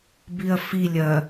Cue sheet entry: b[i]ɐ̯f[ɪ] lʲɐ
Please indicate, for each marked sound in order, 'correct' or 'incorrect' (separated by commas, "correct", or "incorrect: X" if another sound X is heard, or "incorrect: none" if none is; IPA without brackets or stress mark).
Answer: correct, incorrect: i